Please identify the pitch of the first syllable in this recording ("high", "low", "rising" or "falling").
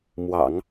low